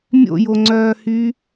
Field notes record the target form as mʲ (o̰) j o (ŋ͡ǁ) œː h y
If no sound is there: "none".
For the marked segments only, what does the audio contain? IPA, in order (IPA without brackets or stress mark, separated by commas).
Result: o̰, ŋ͡ǀ